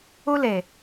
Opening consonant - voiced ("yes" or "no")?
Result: yes